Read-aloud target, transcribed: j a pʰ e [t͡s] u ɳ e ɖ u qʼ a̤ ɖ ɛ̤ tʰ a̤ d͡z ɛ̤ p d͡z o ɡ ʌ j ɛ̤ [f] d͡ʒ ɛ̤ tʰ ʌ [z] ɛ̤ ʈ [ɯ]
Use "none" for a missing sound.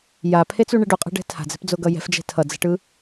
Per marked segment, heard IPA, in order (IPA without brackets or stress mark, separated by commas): t͡s, f, d͡z, ɯ